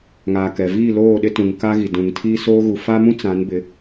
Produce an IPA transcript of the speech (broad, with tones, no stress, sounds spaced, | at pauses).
ŋ aː˨ k ɛ˨ v iː˦˨ l oː˦˨ ɗ ɪ˦ t ũ˨ ŋ k a˦ ɣ i˨ d ũ˨ ŋ tʰ iː˦ s oː˦ ɣ u˨ f a˦ m ũ˦ t͡s ã˨˦ n b ɪ˨˦